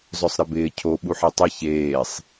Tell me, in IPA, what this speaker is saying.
zœsˤɾɪbɪː cʰo ɓuħetˤə çeːsˤ

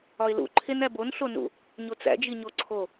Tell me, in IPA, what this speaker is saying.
ɒɪ̯lṵ ǃʰenæbon ɬonṵ | ɲot͡sæ̰ d͡ʒiɲoǀʰo

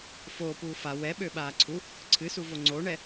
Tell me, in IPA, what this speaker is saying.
foːpuː fa wɛɓøɓaː ǀʰu | ǀʰɨsuvo ŋ͡ǀoɳɛ

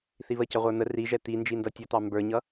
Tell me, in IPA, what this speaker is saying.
θiβəcʌ ʁʷə˞n̪ə riʒɛ t̪i nd͡ʒindʌtʲʌt̪ɑ mbə˞ɲʌ

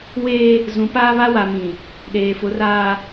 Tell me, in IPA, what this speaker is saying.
weː˦ | zũ˨˦paː˦ βa˦wa˨mĩ˨ | ɗeː˨fʊ˨˦raː˨

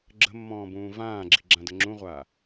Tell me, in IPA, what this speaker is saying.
ɡ͡ǁə̤mːɔ̃ːbũː vãːɡ͡ǁi̤ɡ͡ǁãdə ŋ͡ǁũʁʷa

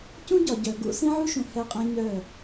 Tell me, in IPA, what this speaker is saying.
cũ˦ɟɒ˨ ɟœ˨ ɡṵ˦ sĩ˦ʕu˦ʃũ˨ hɛ˦qʼɛ̃˦ ɲœ˦˨

